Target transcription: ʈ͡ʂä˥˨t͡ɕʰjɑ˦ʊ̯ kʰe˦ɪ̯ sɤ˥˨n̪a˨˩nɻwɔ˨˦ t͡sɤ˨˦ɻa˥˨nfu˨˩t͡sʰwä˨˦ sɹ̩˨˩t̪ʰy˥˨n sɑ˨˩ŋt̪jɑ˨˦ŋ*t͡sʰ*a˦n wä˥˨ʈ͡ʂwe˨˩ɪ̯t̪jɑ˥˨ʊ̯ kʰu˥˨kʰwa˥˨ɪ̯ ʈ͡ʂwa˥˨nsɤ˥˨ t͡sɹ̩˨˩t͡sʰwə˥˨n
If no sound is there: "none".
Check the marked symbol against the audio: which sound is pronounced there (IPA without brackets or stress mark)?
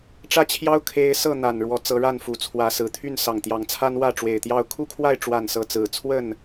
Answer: t͡sʰ